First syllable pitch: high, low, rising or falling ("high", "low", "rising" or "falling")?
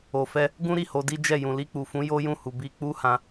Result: low